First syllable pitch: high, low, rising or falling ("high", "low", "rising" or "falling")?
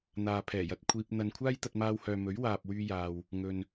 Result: low